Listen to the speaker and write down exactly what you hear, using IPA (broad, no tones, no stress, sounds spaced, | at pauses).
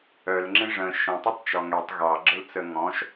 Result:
œ l ŋ͡ǁ ĩ ʐ ə̃ ʃ ə̃ tˤ i tˤ t͡ʃ ɔ ŋ ɛ tˤ ɣ ɑ ɡ͡ǁ ə l t͡s ə ŋ ɔ̃ ʃ